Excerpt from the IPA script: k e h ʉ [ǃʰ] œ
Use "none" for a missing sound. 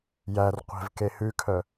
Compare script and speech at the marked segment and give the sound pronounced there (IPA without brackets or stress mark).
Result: kʰ